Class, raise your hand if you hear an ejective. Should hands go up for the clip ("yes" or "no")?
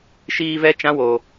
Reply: no